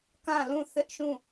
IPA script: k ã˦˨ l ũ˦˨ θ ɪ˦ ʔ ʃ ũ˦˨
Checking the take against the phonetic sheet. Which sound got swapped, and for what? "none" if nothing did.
none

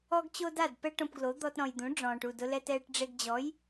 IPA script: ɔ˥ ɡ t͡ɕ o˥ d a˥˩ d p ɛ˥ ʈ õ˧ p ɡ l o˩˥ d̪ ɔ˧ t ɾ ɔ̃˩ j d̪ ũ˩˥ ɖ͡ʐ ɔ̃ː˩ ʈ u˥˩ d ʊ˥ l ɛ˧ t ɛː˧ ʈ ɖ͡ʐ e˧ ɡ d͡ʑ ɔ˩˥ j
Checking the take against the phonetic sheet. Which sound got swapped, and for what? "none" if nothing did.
none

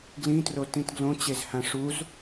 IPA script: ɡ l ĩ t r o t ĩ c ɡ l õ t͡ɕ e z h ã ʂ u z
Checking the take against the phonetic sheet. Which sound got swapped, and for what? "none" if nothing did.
c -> t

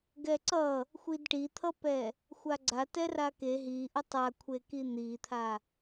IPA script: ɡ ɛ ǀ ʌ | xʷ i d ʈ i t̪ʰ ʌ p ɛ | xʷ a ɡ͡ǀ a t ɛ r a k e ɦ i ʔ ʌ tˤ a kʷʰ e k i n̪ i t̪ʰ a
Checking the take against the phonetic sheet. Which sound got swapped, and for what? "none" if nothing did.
none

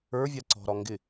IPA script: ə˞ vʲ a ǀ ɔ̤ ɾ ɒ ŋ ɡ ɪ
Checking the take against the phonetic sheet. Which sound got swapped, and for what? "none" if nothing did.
none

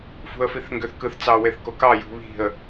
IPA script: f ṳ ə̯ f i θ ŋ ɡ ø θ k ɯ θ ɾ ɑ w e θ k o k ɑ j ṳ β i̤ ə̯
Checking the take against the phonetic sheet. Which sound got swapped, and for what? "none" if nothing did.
ɾ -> t͡s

